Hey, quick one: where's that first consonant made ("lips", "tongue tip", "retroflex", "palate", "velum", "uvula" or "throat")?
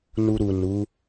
tongue tip